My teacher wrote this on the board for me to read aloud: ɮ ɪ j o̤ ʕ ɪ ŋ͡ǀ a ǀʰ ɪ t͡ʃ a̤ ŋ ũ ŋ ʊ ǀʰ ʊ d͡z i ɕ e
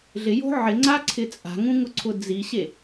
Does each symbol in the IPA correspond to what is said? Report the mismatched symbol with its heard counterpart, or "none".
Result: t͡ʃ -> t͡sʼ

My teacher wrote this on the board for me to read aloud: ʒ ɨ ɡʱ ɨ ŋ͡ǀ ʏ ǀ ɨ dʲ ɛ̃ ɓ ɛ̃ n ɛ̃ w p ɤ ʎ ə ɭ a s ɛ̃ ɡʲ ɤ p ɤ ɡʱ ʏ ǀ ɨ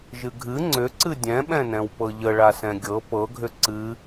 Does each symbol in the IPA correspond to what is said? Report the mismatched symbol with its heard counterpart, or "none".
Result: none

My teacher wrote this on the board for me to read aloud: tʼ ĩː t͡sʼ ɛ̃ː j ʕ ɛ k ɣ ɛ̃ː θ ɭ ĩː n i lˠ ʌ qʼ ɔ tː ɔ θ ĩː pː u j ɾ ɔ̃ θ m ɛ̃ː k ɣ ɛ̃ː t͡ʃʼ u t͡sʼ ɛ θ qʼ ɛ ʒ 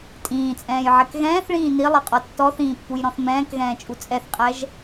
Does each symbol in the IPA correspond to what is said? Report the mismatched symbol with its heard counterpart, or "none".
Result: none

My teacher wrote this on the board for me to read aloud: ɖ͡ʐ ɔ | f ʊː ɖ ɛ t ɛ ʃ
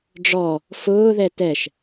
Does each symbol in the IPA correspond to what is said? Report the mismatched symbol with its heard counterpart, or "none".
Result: ɖ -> ð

